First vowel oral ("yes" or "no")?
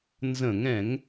no